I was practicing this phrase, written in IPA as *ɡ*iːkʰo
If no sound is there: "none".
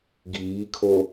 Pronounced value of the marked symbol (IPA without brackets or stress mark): ɡ